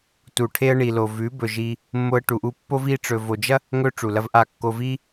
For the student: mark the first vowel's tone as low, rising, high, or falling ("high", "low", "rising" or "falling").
low